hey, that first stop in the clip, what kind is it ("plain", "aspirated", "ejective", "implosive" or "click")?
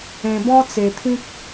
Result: plain